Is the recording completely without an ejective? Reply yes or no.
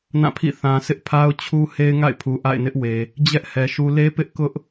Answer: yes